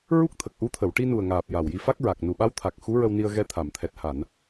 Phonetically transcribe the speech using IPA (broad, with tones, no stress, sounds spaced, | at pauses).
ɹ u˦˥ k̚ t̪ʰ ə˨˩ k̚ ʔ u˧˥ t̪ʰ ə˨˩˨ w ʈ i˧ n u˨˩ ə̯ ŋ aː˨˩ p̚ j a˨˩ w j i˧ f a˦˥ k̚ ɹ a˨˩ k̚ n u˨˩ ɓ a˧˥ w t̪ʰ a˨˩ k̚ x u˧˥ ɹ ə˧ w n i˧ ə̯ ɣ ɛ˧ t̪ʰ a˨˩˨ m t̪ʰ ɛ˨˩ t̚ h a˨˩˨ n